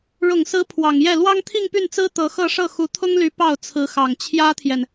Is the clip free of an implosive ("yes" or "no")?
yes